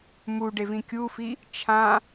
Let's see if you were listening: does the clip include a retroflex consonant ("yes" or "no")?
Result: yes